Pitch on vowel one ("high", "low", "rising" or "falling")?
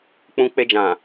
high